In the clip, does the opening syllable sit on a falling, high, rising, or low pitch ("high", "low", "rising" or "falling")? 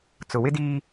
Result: low